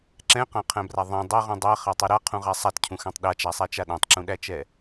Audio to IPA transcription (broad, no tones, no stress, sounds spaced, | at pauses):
ǁ ɛ̃ q ã qʰ æ̃ b r a ðˤ ɛ̃ dˤ a ʁ ũ dˤ æ χ a tˤ u ɾ a qʰ ũ ʁ a sˤ a t cʰ ũ x æ̃ tˤ ɗ a t͡ʃ a sˤ æ t͡ʃ a ɗ æ̃ tˤ ǁ ũ ɗ æ t͡ʃ ɛ